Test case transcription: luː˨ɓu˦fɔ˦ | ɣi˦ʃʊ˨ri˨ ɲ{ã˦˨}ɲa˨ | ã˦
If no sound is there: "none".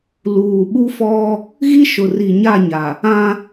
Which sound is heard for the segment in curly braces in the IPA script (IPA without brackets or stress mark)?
a˦˨